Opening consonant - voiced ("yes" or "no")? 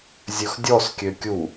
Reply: yes